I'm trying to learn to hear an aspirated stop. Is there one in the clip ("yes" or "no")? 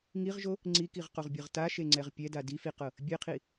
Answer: yes